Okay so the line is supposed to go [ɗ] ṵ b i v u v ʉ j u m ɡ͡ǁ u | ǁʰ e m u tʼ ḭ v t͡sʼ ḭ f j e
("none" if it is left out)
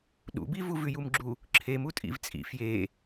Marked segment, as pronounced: ɗ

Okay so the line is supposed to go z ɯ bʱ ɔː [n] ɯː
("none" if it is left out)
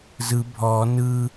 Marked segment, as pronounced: n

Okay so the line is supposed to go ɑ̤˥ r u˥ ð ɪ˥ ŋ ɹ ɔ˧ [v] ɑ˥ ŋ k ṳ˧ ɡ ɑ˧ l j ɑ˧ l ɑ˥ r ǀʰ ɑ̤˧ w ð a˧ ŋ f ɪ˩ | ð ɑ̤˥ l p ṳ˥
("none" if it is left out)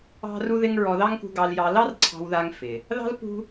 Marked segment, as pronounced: ð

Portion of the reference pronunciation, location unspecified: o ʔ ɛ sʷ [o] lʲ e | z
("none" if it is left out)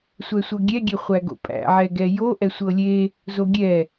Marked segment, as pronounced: ɤ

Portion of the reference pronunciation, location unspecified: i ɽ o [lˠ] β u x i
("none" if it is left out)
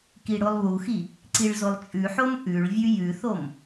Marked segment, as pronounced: lˠ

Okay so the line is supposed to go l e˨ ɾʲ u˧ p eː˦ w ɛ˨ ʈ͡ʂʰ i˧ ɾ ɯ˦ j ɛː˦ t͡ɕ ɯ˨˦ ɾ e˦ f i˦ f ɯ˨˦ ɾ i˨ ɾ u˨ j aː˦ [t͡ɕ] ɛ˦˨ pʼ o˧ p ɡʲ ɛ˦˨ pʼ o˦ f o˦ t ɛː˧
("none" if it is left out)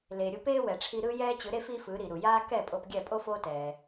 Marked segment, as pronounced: k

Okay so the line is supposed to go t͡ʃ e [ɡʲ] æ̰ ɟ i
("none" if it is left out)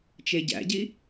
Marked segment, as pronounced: ɟ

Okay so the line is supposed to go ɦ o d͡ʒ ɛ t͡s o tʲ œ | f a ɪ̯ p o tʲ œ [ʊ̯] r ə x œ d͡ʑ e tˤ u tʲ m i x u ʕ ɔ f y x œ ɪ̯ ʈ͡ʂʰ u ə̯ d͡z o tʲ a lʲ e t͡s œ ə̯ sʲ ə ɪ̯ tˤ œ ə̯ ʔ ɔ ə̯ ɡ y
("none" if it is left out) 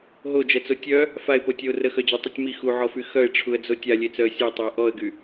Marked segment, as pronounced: ʊ̯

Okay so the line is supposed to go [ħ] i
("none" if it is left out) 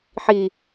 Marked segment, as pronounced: ħ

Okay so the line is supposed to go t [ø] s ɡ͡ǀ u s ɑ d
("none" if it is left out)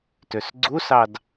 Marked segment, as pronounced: ø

